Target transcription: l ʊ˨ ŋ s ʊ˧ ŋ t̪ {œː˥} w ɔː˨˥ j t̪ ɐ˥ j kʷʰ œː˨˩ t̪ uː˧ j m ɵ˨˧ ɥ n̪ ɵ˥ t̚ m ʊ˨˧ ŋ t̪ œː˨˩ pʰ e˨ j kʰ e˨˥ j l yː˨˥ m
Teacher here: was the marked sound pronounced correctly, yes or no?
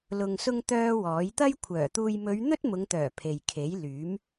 yes